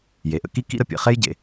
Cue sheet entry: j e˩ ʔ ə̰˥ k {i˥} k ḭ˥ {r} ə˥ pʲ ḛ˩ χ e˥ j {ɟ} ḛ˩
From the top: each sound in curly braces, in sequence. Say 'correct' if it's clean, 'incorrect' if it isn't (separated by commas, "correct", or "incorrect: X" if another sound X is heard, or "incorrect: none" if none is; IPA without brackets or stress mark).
correct, incorrect: ɾ, correct